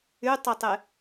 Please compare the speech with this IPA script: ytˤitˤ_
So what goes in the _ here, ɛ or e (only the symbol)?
e